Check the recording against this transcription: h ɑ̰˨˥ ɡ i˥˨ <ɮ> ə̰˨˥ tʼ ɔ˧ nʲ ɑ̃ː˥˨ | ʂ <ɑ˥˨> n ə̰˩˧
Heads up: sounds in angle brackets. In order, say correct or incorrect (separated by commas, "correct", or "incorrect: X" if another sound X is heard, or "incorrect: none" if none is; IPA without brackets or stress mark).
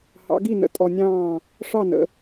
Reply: incorrect: n, correct